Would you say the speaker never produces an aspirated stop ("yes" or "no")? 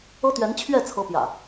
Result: no